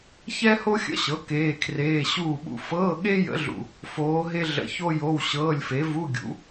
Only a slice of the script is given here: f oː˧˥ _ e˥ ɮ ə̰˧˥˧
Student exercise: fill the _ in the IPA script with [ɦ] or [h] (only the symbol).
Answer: ɦ